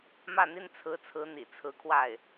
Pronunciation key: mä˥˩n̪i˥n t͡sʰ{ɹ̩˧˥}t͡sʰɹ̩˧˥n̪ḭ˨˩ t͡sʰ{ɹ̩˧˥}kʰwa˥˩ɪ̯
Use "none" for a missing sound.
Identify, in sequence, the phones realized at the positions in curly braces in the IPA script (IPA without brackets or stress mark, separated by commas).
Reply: ɹ̩˧˥, ɹ̩˧˥